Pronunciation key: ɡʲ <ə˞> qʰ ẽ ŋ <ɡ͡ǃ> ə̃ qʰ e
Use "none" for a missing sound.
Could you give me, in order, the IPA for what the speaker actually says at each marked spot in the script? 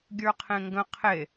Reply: ə˞, ɡ

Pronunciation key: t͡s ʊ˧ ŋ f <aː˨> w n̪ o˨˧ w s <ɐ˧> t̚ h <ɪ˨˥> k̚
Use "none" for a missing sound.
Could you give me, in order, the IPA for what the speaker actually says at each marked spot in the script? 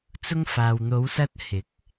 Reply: aː˨, ɐ˧, ɪ˨˥

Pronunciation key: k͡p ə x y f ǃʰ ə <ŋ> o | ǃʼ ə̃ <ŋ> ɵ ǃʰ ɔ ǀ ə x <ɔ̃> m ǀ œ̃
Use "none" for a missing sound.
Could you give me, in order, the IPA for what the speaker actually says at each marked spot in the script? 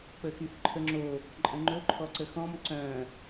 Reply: ŋ͡ǁ, ŋ͡ǃ, ɔ̃

